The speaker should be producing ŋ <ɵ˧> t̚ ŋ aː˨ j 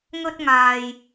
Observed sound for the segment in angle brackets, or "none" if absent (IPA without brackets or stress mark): ɵ˧